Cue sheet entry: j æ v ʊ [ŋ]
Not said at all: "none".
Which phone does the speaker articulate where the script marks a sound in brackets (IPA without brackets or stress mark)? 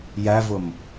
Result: m